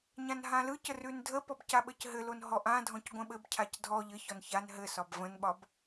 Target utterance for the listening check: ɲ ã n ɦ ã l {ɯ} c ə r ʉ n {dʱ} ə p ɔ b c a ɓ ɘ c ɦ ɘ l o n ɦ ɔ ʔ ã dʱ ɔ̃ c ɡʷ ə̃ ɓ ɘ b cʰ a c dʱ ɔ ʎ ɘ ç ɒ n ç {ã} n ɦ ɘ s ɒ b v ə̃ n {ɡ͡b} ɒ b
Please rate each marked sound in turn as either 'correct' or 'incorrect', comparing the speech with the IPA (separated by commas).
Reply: correct, correct, incorrect, incorrect